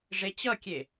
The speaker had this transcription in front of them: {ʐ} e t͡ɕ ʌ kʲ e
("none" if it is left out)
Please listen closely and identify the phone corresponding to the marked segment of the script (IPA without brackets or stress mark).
ʐ